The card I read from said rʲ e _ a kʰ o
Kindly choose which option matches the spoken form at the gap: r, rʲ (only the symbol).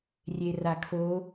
r